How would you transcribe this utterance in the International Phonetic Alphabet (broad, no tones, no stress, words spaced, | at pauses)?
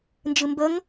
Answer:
nd͡ʒɨmbəŋ